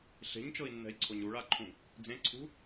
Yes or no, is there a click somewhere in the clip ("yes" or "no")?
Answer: yes